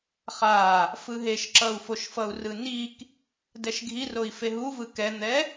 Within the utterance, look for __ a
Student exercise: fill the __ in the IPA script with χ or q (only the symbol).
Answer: χ